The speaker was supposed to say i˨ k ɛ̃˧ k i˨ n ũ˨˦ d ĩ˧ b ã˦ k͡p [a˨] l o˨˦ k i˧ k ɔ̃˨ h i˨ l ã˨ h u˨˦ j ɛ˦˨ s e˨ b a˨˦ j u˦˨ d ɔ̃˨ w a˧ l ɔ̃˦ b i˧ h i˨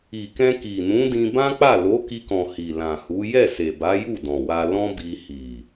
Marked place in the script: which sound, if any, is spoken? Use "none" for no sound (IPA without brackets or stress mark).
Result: a˦˨